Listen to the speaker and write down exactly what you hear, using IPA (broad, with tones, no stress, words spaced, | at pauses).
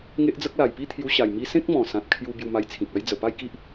ŋe˦ʔd͡zə˦k̚ la˨˩jpi˥˧t̪ʰju˧ɕa˨˩j mi˧sẽ˦k̚ mɔ̃˨˩sã˨t̚kʰju˧ bju˧ma˧jt͡sʰĩ˨k̚a˦j d͡zə˨˩pa˥˧jki˦ʔ